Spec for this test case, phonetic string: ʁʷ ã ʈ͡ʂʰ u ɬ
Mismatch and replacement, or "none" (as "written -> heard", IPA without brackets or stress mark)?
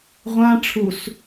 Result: ɬ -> s